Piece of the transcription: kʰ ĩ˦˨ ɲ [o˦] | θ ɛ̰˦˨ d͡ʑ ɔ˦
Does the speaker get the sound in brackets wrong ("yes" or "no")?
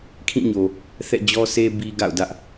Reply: yes